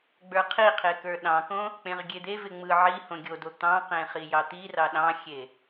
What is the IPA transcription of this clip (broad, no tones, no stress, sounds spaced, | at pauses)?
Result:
ɡ͡b ə˞ qʰ i qʰ e k ə˞ ɗ ɑ̃ k õ | k͡p ẽ ʁ ɡʲ e d̪ e v ɪ ŋ͡m ɯ ʕ i h õ ɡʲ o d o t̪ ɑ̃ q ẽ χ i j ɑ t̪ i r ɑ ɗ ɑ̃ xʲ e